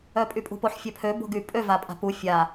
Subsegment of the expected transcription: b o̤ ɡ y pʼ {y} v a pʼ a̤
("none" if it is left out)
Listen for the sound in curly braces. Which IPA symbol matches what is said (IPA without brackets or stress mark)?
ø